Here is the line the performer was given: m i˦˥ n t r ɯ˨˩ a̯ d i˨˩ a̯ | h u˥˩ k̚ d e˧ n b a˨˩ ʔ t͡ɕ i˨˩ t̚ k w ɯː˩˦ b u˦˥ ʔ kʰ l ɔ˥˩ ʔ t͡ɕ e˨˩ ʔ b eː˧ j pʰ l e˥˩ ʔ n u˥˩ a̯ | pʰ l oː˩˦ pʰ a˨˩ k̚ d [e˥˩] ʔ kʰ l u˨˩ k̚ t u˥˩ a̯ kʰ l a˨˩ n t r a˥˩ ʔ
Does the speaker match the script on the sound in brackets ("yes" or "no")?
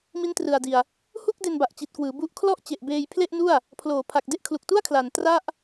yes